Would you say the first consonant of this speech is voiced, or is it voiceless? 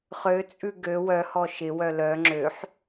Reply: voiceless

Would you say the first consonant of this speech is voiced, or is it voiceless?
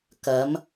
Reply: voiceless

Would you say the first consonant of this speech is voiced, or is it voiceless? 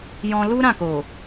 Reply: voiced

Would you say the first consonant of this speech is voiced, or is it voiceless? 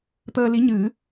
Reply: voiceless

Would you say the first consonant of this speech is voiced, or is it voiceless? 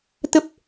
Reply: voiceless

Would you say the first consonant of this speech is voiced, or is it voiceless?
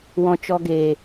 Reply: voiced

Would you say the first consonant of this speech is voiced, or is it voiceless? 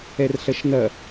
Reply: voiced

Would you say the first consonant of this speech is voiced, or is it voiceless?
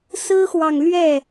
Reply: voiceless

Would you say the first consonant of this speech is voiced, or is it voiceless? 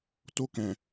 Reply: voiceless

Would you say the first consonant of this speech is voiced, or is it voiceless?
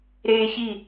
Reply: voiced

